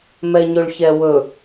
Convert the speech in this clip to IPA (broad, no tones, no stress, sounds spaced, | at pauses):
m ɛ ɲ ɵ ɭ ç ɛ w ɵ